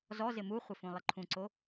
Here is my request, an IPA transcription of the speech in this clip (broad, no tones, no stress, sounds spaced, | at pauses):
z ɔ z ɪ m u χʷ ɪ f ũ lˠ ɪ ǃʰ ũ ǀ o